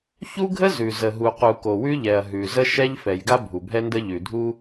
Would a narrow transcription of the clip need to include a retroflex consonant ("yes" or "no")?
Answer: no